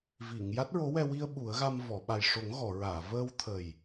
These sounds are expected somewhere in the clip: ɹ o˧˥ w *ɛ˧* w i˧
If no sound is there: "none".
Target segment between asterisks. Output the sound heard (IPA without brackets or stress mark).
ɛ˧